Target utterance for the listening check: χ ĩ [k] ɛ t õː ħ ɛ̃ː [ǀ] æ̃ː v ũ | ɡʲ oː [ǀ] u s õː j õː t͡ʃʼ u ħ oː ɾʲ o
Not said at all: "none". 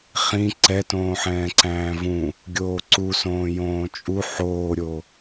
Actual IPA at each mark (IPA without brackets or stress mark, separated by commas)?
ǀ, ǀ, ǀ